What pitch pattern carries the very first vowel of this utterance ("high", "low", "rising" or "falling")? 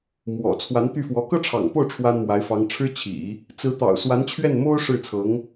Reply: low